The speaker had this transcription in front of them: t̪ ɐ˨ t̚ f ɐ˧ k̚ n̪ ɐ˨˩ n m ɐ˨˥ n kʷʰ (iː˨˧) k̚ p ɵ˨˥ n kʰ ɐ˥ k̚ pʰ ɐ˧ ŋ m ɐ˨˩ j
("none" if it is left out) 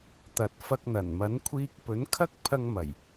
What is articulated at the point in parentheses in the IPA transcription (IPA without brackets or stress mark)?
iː˧